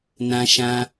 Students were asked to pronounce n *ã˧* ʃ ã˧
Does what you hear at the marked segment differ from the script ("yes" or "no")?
no